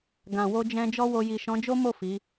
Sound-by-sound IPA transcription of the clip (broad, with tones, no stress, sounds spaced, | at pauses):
ɡ ã˨ w o˧ d͡ʒ ɛ̃˧ d͡ʒ ɔ˦ w o˧ j i˨ ʃ ɔ̃˨˦ d͡ʒ o˦ m o˦˨ f i˨˦